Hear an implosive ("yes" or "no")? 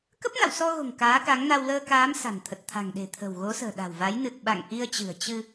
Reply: yes